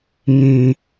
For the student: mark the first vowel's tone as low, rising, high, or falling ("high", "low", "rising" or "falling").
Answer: low